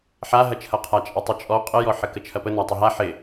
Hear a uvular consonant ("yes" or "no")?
yes